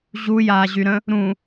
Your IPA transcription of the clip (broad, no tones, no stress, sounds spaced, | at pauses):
ʑ u j aː ʑ y ɾ ə̃ | ɾ ũ